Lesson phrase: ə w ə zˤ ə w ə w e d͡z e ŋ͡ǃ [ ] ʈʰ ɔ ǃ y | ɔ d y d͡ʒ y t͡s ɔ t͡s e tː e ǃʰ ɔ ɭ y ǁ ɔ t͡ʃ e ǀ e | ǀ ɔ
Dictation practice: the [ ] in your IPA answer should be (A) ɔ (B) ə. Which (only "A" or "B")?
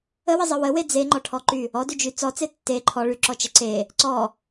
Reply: A